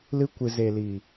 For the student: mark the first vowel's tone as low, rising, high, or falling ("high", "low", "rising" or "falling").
high